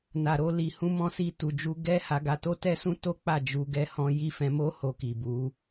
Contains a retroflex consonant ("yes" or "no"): no